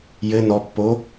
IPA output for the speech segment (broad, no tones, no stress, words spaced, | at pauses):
jɘ nɔpːo